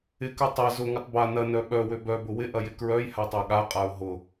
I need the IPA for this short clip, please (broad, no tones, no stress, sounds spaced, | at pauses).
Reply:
ɪ k œ tˤ ɐ z ʊ ŋ ɐ tˤ b a n ɐ n œ ɓ œ w ø b œ b ʊ w ɪ ʔ ɐ j ɪ k ɹ œ j h a tˤ a ɠ a qʼ a ʊ̯ ɦ ʊ